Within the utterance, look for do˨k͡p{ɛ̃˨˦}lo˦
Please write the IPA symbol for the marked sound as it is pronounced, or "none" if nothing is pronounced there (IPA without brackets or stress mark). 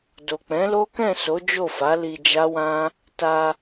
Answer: ɛ̃˨˦